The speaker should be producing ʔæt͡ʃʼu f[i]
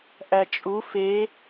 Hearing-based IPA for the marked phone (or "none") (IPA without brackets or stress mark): e